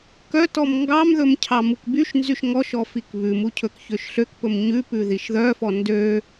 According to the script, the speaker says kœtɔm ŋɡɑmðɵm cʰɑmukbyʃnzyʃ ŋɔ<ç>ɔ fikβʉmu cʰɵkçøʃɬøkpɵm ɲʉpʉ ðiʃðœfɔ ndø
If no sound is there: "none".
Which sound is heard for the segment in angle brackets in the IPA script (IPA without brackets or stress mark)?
ʃ